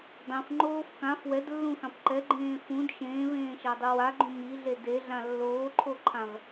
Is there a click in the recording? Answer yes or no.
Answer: yes